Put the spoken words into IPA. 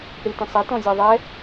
ɽ i t ĩ sˤ ɛ t ɔ̃ zʲ ɐ ðˤ ɛ

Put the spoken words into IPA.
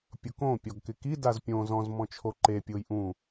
pʲ ʊ k õ pʲ ɔ ɡ k ɪ k i d a z pʲ õ z ɔ̃ z m ɔ̃ t͡ʃʰ o ǃ e pʲ ʊː j ʔ ũ

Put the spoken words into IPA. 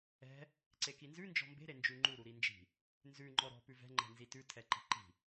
ɛ̤ | ǀ e k i n z ʉ n d͡ʒ ɔ̤ m b e̤ ɾ e n d͡ʒ ʉ ŋ͡ǃ u ɾ u ɾ i n d͡ʒ i̤ | n z ʉ ŋ͡ǃ ɔ ɾ ɔ̤ p ʉ v ɛ̤ ŋ͡ǃ ɛ̤ n z i t ʉ tʰ ɛ ǃ i̤ ǃ i̤

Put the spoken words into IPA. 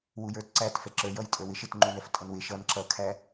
w u j ə˞ t ǀ æ t f ɛ ǁ ə˞ j ʌ j tʼ ə˞ w ɪ ʃ ɪ t ŋ͡ǃ u n ɛ f tʼ ʌ n w ɪ ʃ ʌ n ǁ ʌ kʰ æ

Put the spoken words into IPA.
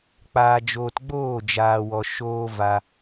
k͡p aː˨ d͡ʒ oː˨ t ɡ͡b oː˦˨ d͡ʒ aː˨ w ɔ˨ ʃ oː˧ v a˧

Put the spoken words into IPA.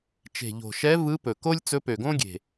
t͡ʃ e̤˨˩ ʎ o̤˨˩ ʃ ɛ˧˥ v ɯ˧˥ p ɵ˨˩ k o˥ lʲ t͡s ɵ˧˥ p ø˨˩ ɡ õ˥ ɡʲ e̤˨˩

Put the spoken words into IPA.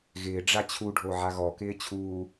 ɣ ɪː ɖ͡ʐ a t͡ɕʰ u ɖʱ o ʕ a ɣ ɔ k ɪː t͡ɕʰ uː

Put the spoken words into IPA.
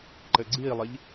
ǃ ɘ ɡ͡ǀ i lˠ i ʎ

